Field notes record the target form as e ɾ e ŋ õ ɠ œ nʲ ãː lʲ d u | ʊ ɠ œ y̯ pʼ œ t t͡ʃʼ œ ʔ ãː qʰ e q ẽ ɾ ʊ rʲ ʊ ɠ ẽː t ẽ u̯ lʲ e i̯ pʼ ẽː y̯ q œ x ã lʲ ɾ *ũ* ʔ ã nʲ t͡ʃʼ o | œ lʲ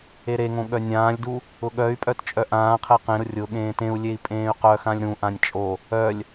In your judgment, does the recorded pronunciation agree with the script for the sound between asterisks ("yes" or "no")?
yes